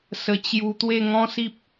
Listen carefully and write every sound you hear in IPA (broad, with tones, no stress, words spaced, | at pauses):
sə˧ t͡ɕju˧ t̪we˥˧ŋɔ̃˦si˦p̚